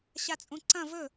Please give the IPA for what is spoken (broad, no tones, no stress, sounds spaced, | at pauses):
ɕ a t͡sʼ ũ ǀ ɐ̃ v ɵ